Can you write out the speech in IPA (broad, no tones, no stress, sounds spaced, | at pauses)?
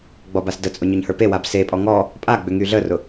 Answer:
ɡ͡b ɔ b a s d ə t͡sʼ ʊ ɲ ʊ ɲ h ə˞ p e w a b s e pʼ ɔ ŋ ɔ | pʼ a ɡ͡b ʏ ŋ y ɮ ə r ʊ